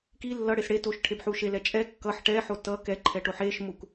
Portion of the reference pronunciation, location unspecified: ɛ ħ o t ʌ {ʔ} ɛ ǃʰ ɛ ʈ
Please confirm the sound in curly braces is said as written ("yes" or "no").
no